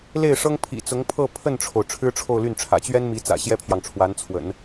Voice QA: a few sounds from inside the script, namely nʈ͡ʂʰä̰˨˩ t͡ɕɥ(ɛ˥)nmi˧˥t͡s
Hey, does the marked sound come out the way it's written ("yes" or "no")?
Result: yes